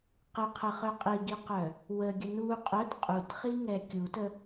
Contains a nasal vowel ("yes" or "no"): no